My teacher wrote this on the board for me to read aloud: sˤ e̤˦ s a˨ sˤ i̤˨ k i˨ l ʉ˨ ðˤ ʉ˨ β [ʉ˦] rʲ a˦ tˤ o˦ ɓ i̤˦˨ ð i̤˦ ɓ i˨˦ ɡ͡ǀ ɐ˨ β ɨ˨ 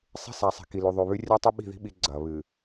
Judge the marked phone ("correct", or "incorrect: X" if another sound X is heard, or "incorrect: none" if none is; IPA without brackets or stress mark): correct